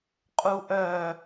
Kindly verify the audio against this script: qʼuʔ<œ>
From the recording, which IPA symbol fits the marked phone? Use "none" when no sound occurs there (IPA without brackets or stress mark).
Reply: œ